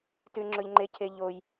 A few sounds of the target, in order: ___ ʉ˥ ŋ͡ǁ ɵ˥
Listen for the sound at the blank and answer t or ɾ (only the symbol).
t